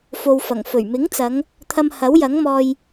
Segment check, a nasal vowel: absent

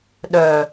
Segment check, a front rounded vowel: present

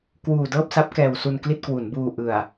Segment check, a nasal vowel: absent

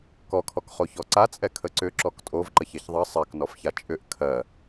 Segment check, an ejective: present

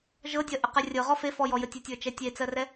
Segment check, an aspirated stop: absent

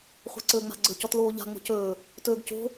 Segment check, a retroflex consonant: absent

